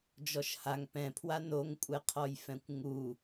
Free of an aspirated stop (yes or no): no